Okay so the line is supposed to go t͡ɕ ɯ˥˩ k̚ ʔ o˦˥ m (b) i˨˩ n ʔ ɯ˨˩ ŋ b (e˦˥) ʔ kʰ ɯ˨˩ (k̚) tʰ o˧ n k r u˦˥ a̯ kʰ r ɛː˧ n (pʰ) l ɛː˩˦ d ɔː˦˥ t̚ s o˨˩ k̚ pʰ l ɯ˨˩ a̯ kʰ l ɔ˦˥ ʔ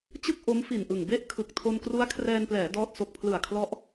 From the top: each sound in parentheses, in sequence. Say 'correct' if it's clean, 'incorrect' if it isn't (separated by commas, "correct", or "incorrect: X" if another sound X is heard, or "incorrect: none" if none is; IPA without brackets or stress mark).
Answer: incorrect: f, incorrect: e˥˩, correct, incorrect: p